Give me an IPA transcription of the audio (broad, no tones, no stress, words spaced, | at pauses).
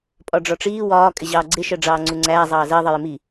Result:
pʼɒɖ͡ʐɒʈ͡ʂiː wɒː kʼɪʑɑːɡ͡ǀɪ ʃɜɖ͡ʐɑːŋ͡ǀuŋ͡ǀæː zˤɑːzɜ ðˤɜjɪmi